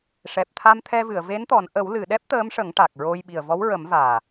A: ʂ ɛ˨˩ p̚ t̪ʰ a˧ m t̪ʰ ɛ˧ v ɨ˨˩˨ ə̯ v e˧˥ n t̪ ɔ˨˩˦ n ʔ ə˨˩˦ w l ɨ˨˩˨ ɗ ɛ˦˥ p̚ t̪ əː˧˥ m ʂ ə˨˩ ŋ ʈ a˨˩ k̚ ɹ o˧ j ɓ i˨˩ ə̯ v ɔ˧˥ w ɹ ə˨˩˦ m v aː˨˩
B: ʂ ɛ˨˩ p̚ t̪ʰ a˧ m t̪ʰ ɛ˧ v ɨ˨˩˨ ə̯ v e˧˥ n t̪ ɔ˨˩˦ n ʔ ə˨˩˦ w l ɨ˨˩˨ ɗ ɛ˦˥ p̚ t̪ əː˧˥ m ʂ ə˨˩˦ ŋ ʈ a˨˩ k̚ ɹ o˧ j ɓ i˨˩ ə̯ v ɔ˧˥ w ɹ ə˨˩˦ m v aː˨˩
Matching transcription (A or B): B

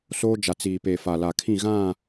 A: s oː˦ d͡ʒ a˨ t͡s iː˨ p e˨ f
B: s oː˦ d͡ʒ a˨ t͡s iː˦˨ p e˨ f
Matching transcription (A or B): A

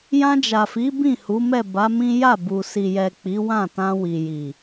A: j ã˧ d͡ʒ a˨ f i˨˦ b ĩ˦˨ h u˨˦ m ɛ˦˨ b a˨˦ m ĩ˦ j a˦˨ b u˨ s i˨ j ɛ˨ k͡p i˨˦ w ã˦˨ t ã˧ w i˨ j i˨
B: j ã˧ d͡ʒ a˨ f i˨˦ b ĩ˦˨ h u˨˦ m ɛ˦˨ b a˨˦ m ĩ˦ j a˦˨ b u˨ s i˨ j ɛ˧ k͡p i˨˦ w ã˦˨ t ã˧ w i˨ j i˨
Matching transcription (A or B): A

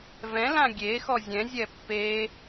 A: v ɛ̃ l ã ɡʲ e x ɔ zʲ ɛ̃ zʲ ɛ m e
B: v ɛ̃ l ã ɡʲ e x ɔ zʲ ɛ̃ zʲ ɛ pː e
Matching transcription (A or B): B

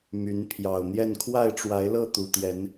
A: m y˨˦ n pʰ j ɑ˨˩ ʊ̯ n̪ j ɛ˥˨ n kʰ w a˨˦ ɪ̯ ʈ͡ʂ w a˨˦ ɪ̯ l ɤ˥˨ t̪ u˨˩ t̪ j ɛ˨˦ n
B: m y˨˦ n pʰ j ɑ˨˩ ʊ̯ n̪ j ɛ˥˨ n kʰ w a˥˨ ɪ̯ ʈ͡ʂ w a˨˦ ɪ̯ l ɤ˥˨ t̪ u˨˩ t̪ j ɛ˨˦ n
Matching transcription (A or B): B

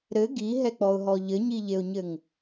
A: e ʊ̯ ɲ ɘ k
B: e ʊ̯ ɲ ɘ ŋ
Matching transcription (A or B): B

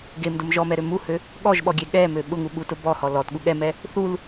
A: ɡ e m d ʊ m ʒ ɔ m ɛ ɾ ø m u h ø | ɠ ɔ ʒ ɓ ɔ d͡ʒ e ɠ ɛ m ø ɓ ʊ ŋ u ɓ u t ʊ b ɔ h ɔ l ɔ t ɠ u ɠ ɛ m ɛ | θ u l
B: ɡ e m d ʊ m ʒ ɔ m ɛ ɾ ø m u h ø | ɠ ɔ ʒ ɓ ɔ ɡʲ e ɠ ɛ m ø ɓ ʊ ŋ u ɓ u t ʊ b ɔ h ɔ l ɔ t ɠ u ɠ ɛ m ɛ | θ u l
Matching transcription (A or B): B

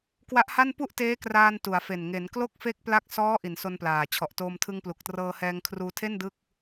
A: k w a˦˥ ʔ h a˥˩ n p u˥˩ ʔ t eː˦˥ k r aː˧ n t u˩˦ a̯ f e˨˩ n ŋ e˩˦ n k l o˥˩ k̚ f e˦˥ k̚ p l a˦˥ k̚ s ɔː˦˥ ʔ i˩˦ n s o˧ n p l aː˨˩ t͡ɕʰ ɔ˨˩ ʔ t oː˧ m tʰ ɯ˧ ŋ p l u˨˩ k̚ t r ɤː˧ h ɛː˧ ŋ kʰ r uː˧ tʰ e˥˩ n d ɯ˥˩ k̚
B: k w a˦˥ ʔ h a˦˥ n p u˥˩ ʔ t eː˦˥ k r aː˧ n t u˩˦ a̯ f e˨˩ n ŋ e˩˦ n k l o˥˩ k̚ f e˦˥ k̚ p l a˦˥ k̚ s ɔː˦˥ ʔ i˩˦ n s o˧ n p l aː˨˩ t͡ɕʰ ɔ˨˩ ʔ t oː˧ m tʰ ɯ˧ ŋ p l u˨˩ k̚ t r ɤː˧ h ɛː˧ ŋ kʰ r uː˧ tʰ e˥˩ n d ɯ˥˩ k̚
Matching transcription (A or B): A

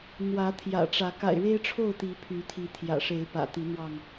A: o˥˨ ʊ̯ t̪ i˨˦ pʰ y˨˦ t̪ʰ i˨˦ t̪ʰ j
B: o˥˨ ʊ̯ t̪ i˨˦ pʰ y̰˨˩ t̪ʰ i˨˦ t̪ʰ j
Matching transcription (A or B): A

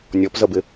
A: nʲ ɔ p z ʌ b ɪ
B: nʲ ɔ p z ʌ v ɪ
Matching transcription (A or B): A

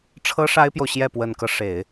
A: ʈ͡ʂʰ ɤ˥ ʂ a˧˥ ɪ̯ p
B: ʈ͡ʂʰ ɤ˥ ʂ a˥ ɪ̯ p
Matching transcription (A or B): B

